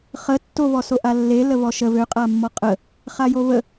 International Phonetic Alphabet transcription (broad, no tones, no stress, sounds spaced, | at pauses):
χ ə tː o β ɔ s o ʔ a lː e l ə β ɔ ʃ ə β ø qʼ a mː ɔ qʼ ə | χ a j o β ə